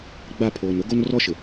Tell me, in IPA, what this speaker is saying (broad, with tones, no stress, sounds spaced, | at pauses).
ɡ͡b a˦˨ pʰ oː˨ n ʊ˦ ɡ o˦ n r ɔ˦ ʃ ɪ˨